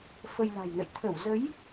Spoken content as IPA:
fə˧jla̤˨˩jnə̰˧˨j t̪ʰə˧˩wzə˨˦j

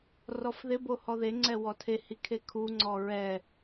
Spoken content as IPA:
rɔfðɪbo hɔðeŋ͡ǀɛ wɔtʰehi kʰekʰuŋ͡ǀɔ ɹɛ

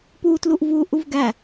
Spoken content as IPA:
puːtluʔvuː ʔuvɡæ

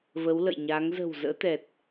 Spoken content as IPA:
və˨˦wlə̰˧˨jɲa˨˦ŋ zə̤˨˩w zə̰ː˧˥t̪ɛ˨˩t̚

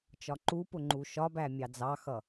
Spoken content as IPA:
t͡ʃɒǃupʊ ŋ͡ǃuʃɒbæ mʲɑd͡zɑxʌ

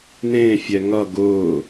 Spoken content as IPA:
n̪ẽːfʲɛ ŋʌ ɡʊː

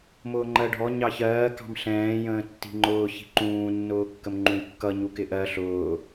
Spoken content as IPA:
mʊːŋ͡ǃɜɖʱɔ ɲɑçɜː kɑ̤mɬɛ̃ː jə̃ːtːi̤ŋ͡ǃʊː çi̤ǃũː nːʊːkːəmŋ͡ǃũjkːʌ ɲukɪʔɜ ɬʊː

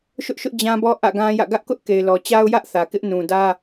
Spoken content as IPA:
ʃʊ˦ʔʃʊ˦ʔ d͡ʑã˦bɔ˦ ʔä̰˦˨ɡã˦jä̰˦˨ ɡä˦ʔkʊ˦ʔ ke˨ɪ̯lɔ˨t͡ɕa˦ʊ̯jä˦ʔ θä˨kɪ˦ʔ nũ˨ dä˦

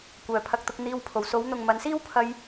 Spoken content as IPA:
kʷœː˨pʰɐ˧k̚t̪ʊ˧k̚ n̪iː˧wpʰo˨˧w so˨˧wn̪ʊ˨ŋ mɐ˨˧nsiː˥wpʰɐ˧j

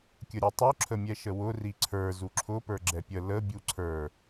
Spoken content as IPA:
kʲəɾʲɛtˤu ǁʰəmʲɛʃəwʊ riǀʰə˞ zuǁʰʊ pə˞ɡ͡ǁɛpʲə lə bʲuǀʰə˞

